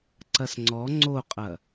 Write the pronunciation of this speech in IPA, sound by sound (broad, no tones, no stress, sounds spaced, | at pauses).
ǀ ɐ s ŋ͡ǀ ɔ ŋ͡ǀ o qʼ ɐ